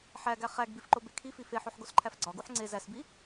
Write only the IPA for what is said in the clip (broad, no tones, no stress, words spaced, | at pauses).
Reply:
ħæɡæ χæɡbifǃobe kʰifi feħoħɡosǃʰæf ɡ͡ǀɒɡuħ ŋ͡ǀe zæsbi